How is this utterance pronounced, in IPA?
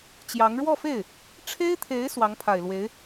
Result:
t͡ɕjɑ˧˥ŋ ɻwɔ˥˧fe˥˩ɪ̯ | ʈ͡ʂʰe˥ɪ̯t̪ʰe˧˥ɪ̯ swɑ˧˥ŋpʰa˨˩ɪ̯lwe˧˥ɪ̯

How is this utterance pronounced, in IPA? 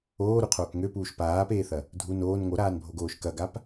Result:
oːɾuqʰoːk ŋøpuːʃ paːpeːθɐ | dʱu noːn ŋoɾaːnbʱoɡoːʃ kɐɡap

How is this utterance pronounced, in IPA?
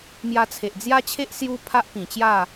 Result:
mja˧t͡sʰe˨ʔd͡zja˦t͡ɕʰe˦ʔ sju˦ pʰa˦ʔpĩ˨˩t͡ɕja˥˧

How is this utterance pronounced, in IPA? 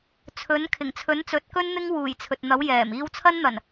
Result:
t͡sʰɵ˨˥n kʰɪ˨˩ŋt͡sʰɵ˨˥nt͡sɵ˨˥t̚kɵ˥n n̪ɪ˥ŋwuː˨˩jt͡sʰɵ˨t̚n̪ɐ˨˥w jɛː˨˩m iː˧wt͡sʰɐ˥nn̪ɐ˨˩n

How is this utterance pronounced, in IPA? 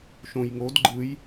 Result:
ʃõjŋod ɡ͡ǃɯj

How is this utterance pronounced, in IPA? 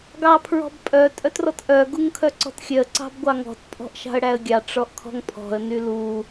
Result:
ɡɑpʰɹɔ̤bpʼœ tʼœtrɔtʔœ ɡuŋkʰœǀɔ̤txʲœə̯ ǀɑ̤bɡʷɑŋɔ̤t pʼɔ̤ʔʃɑ̤ə̯ɽæə̯ɡʲɑ ʈ͡ʂɔʔkʰɔ̤ŋpʰɔ̤ə̯ nylu

